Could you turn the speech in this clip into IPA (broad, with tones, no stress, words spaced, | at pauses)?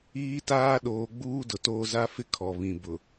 iː˦taː˦ɗoː˨˦ ɡ͡buː˦dʊ˨toː˦ za˦fɪ˦kʰɔ˨ βĩ˨ bʊ˨